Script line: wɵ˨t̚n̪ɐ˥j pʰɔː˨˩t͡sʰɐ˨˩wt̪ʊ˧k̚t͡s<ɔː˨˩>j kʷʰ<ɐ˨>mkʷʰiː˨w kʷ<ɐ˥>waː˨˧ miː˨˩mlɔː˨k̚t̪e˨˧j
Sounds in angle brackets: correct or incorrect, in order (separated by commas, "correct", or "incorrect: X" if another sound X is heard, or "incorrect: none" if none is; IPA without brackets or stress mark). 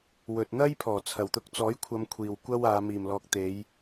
incorrect: ɔː˨˥, incorrect: ɐ˧, correct